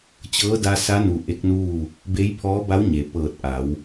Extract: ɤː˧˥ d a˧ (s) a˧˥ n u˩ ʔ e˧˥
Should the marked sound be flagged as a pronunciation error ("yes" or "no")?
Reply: no